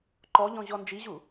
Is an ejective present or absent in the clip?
absent